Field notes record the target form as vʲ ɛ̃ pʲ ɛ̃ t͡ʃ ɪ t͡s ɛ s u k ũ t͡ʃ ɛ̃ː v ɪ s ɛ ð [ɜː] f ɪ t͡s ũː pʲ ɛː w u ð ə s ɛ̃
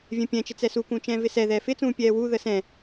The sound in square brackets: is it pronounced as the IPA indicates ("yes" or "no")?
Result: no